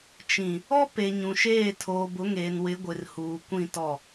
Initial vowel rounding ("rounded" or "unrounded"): unrounded